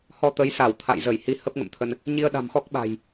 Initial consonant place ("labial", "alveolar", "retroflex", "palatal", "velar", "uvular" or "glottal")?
glottal